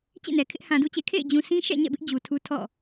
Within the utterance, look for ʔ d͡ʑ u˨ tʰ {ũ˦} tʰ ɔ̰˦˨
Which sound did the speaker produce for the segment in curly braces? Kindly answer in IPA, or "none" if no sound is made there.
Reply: u˦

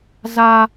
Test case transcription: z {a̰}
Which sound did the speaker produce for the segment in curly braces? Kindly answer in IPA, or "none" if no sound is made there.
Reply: a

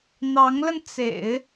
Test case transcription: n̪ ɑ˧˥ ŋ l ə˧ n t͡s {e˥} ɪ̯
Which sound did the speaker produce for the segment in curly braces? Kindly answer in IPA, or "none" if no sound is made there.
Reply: ḛ˨˩˦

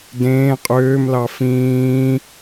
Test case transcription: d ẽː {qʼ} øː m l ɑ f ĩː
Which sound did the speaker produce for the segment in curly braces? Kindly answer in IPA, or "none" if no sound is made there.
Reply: qʼ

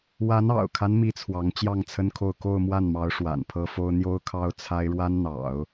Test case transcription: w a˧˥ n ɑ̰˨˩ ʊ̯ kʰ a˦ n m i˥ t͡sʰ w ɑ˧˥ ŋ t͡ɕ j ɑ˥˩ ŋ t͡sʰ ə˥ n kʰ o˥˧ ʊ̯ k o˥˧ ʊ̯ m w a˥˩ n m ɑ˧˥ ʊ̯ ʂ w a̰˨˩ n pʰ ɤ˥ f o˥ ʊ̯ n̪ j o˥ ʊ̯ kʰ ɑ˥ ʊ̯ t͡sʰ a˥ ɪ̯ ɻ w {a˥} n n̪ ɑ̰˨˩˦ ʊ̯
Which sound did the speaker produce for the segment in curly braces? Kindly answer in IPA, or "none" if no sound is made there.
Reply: a˥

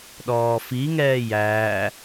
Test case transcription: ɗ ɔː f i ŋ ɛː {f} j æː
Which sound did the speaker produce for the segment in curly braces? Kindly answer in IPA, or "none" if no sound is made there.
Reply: none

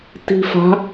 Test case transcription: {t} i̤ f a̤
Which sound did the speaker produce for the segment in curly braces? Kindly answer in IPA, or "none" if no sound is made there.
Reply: t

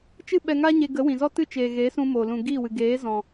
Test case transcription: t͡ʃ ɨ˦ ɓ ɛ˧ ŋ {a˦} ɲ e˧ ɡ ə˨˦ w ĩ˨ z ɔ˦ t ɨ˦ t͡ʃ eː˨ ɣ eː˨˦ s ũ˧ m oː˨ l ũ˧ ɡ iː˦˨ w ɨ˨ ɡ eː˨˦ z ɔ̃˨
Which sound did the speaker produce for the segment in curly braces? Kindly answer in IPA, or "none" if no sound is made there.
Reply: a˦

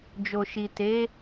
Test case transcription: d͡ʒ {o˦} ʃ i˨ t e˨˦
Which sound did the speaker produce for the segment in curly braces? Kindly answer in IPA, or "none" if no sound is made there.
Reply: o˨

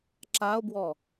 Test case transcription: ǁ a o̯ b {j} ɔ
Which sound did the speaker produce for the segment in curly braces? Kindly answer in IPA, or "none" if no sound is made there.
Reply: w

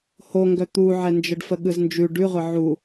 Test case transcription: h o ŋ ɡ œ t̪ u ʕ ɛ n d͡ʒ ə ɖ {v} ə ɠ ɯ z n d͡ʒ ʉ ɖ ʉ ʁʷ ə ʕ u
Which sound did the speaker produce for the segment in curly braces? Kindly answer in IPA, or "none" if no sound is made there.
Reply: f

